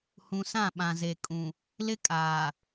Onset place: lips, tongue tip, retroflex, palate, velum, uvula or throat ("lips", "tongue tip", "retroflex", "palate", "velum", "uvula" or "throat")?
throat